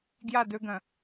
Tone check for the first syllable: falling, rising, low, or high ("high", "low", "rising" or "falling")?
falling